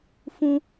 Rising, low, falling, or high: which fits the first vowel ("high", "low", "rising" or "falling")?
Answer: high